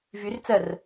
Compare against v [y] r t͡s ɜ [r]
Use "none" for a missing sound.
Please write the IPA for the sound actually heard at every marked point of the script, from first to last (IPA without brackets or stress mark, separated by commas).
y, r